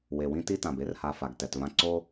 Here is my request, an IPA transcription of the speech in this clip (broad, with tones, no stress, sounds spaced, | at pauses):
w e˨ w ĩ˦ t i˦ t ã˨ b e˦ r h a˨ f a˨ ɡ t ɛ˨ t v ã˦ ǀ o˦